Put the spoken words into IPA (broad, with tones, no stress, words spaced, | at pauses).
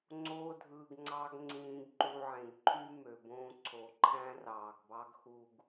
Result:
ŋ͡ǀoː˨dʱɯː˩ɡ ŋ͡ǀɑ˨ɡ ŋ͡ǀĩː˨ɡǃu˨ʕẽ˩ɡǃʰy˥ mø˩bõː˦ ǀʰo˩ǃʰæ̃˦ rɑː˩ɡbɑ˥ɡxu˦ɡ